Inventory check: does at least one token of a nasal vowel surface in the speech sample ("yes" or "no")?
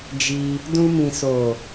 yes